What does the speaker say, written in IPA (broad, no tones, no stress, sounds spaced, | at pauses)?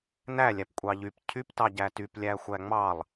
n æ lʲ æ p kʷʼ ɑ ʎ y p cʰ y p t ɑ ɟ æ t y p lʲ æ xʷ æ ŋ͡m ɑ lˠ